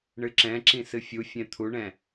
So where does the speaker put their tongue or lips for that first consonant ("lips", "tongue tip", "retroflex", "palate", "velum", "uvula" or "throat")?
retroflex